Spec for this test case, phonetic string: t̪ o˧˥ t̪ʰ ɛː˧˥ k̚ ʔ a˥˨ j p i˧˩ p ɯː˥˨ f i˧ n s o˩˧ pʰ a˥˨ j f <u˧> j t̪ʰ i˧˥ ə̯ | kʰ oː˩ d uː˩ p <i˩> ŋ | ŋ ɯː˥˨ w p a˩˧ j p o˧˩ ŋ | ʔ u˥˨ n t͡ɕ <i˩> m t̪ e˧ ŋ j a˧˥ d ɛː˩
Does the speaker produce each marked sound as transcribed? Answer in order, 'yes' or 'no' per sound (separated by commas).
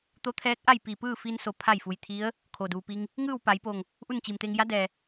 yes, no, yes